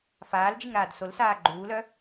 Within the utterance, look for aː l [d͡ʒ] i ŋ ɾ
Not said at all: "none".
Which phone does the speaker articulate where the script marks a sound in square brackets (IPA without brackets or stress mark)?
d͡ʒ